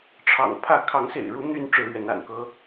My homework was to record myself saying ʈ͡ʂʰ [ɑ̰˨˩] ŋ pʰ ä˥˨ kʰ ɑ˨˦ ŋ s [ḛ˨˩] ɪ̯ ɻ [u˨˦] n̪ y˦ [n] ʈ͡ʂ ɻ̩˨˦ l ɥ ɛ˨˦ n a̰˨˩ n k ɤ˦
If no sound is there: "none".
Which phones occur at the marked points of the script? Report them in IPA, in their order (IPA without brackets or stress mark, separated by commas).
ɑ̰˨˩, ḛ˨˩, u˨˦, n